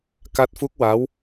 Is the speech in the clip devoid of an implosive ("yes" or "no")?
yes